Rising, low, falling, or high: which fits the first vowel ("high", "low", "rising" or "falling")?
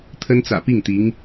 high